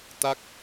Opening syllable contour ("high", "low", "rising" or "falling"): falling